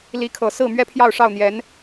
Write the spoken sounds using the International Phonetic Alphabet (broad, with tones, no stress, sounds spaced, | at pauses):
l i˧˥ kʰ ɤ˨˩ s ɹ̩˥˩ m ɥ ɛ˥ pʰ j ɑ˥˧ ʊ̯ ʂ ɑ˥˩ ʊ̯ n̪ j ɛ˧˥ n